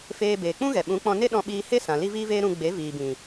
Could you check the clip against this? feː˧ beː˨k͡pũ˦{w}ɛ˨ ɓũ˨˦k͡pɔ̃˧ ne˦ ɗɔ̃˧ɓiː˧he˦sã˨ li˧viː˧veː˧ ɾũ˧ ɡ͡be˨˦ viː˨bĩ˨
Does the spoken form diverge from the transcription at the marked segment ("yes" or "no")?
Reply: yes